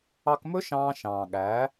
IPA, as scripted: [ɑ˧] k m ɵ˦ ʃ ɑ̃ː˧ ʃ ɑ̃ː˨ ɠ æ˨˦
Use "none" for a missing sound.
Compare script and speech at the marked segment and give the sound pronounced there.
ɑ˧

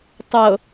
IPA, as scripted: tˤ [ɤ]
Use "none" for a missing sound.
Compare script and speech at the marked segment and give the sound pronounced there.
ɤ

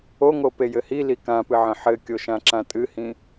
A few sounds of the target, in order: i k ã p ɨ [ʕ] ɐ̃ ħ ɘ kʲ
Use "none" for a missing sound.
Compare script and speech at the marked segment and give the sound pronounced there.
ʕ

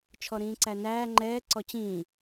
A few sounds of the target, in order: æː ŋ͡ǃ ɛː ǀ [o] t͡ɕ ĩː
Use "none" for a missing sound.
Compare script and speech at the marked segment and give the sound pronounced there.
ɔ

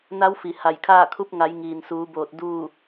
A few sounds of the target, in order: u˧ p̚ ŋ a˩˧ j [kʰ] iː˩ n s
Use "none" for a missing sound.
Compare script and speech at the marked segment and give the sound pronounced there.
ŋ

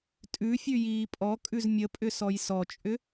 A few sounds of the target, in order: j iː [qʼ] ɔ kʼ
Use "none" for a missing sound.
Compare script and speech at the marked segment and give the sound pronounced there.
pʼ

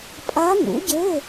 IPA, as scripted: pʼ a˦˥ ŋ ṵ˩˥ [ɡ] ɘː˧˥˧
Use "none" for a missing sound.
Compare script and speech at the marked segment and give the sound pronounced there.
ɟ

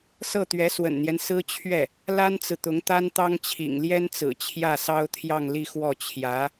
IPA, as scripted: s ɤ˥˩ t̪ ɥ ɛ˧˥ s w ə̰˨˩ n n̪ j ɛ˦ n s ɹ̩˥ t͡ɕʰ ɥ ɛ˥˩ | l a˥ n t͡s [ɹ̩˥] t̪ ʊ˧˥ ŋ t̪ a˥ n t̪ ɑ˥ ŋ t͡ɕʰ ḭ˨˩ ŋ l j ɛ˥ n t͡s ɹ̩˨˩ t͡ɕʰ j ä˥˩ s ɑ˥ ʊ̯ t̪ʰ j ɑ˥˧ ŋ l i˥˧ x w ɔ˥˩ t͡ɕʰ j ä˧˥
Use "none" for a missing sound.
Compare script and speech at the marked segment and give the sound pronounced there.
ɹ̩˨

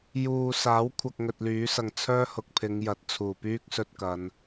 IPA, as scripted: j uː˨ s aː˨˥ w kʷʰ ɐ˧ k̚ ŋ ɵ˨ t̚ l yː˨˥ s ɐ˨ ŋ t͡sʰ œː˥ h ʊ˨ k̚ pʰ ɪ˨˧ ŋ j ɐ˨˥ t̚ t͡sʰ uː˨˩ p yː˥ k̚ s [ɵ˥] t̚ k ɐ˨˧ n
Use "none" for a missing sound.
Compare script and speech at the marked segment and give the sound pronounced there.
ɵ˧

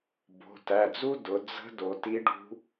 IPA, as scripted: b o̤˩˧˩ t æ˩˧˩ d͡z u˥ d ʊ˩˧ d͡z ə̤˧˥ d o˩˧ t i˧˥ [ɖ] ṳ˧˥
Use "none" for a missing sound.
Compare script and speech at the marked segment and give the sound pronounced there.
ɖ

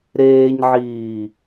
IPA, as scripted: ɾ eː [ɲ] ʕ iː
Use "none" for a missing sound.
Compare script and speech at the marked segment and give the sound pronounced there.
ɲ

